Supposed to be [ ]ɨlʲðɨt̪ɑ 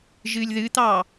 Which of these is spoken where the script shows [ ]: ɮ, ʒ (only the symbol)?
ʒ